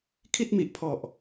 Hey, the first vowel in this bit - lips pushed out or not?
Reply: no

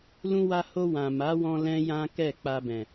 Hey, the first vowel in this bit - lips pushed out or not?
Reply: yes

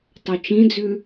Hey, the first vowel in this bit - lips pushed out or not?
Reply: yes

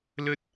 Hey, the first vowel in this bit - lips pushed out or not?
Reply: yes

